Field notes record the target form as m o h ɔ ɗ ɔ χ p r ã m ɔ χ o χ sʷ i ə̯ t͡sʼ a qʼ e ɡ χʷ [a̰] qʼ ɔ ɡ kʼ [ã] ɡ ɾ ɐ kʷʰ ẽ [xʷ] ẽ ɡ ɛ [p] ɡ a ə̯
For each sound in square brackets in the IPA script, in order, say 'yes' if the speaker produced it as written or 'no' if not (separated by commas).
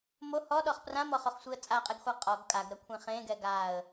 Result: no, no, no, no